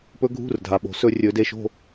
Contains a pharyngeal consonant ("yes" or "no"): no